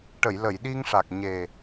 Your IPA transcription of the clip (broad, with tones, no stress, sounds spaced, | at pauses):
ʈ ə˨˩˨ j l ə˨˩˨ j ɗ i˧ ŋ ʂ a˨˩ k̚ ɲ e˨˩